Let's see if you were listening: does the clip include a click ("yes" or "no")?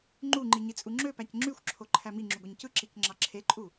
yes